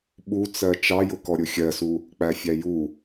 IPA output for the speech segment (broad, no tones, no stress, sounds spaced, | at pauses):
ɓ u t͡s ɜ t͡ʃ ɑ j ʊ k ɔ ɾʲ ʊ xʲ ɜ s u | k͡p æ fʲ æ j u